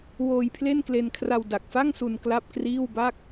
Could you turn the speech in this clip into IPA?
w oː˧ j pʰ l e˥˩ n k l e˧ n kʰ r a˧ w d a˨˩ k̚ f a˥˩ ŋ s u˧ n k l a˥˩ p̚ k r iː˥˩ w b a˥˩ k̚

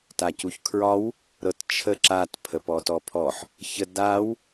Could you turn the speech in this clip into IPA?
t a c u ç kʰ ɹ ɒ w | ɾ ɤ t t͡ʃʰ ə ǁ a t pʰ ə p ɔ t ɔ pʰ ɔ ħ | ç ə d a w

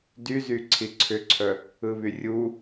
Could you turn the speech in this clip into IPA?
d y z y ǀʰ i ǀʰ ʏ ǀʰ œ | ɯ β y rʲ u

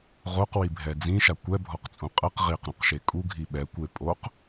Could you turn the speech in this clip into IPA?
ʁ o q w i bʱ ɛ d͡z ĩ ʃ a kʷ ɛ bʱ ɔ q t͡sʼ ũ qʼ ɛ q ʁ i q ɾ ũ q ʃ e kʼ u ɡʱ i ɓ ɛ kʷ e pʼ o q

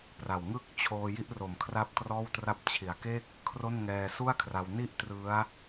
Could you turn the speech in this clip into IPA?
p r a˨˩ w ŋ ɯ˥˩ k̚ t͡ɕʰ oː˧ j i˥˩ ʔ r o˨˩ m kʰ r a˦˥ p̚ t r ɔː˥˩ w t r a˥˩ p̚ t͡ɕʰ i˨˩ a̯ k e˥˩ k̚ | kʰ r o˥˩ n ŋ ɛː˧ s u˥˩ a̯ kʰ r a˧ w n i˥˩ ʔ t r ɯ˦˥ a̯

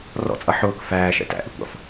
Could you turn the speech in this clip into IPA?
r ɔ̰ t͡sʼ ʌ ħ ʊː k f æː ʃ ɛ̰ t æ̰ ʔ i kʷ ɑ̰ f

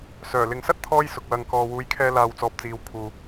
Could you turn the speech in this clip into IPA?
s œː˨˩ l ɪ˨ ŋ s ɐ˥ t̚ t̪ʰ ɔː˥ j s ʊ˨ k̚ w ɐ˨ ŋ k ɔː˨ w uː˨˧ j kʰ ɛː˧ l aː˨ w t͡s ɔː˨ p̚ t͡s iː˨˧ w kʰ uː˨

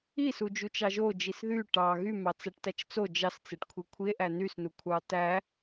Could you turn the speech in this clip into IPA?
i s u d͡ʒ u t͡ʃ ɑ ʒ o d͡ʒ i s ð y ʈ ɑ ɣ y m ɑ t͡s æ ʈ t æ t͡ʃ t͡s o d͡ʒ ɑ s t͡s e ʈ kʷʰ i kʷʰ i e̯ ʔ æ n y s n u kʷʰ ɑ t æ

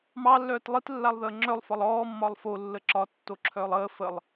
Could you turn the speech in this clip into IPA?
m ɑ lː œː t lˠ i t lː a lˠ ð əː ŋ͡ǁ œ lˠ f ɒ lˠ ɔː mː ɒ lˠ f o lː ə ǁ ɒ tː o ǁʰ œː lˠ əː f ə lˠ

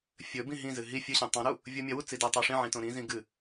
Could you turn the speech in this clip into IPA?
fʲ ɵ b ĩ ɦ ĩ z ɨ ɦ i fʲ ɨ ɕ ĩ tˤ ã ɾ u | vʲ o mʲ ɐ w u t͡s i d e tˤ a ʂ ĩ ʕ ĩ t õ ɾ ĩ z ĩ ɡ ɨ

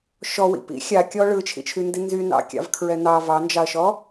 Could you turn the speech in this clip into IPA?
ʃ ɔ w ḭ p ḭ xʲ a kʲ ɔ ɭ ɯ t͡ʃʰ ḭ t͡ʃʰ y n d i n z y n ɑ̰ kʲ ɑ̰ v kʰ ɹ ɛ n ɑ v ɑ n d͡ʒ ɑ ɐ̯ ʃ ɔ

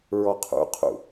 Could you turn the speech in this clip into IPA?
ɹ ɔ qʰ ṵ qʰ ṵ

